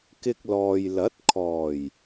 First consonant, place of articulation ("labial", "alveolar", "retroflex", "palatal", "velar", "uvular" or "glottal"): velar